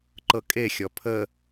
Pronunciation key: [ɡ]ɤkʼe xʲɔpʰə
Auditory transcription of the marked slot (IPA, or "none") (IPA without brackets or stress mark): ǃ